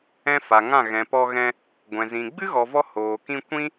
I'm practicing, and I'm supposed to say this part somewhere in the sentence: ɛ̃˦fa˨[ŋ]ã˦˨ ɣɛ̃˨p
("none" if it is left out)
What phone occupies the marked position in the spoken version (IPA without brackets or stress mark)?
ŋ